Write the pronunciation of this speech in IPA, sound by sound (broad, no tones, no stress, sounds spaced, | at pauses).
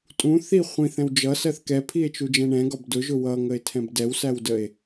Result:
tʼ ũ θ i χʷ ĩ θ ɛ̃ w d͡ʒ ʌ s ɜ θ k ɛ pʰ i e̯ t͡ʃ u d͡ʒ ɛ̃ ɳ ɛ̃ ɡ ɒ b d ʊ ʒ ʊ w ʌ ŋ ə e̯ tʰ ɛ̃ b d ɛ w s æ w d ə e̯